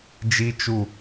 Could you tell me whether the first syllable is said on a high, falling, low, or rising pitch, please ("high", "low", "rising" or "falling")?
high